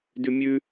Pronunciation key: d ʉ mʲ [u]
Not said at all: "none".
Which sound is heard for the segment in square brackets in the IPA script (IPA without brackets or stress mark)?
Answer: ʉ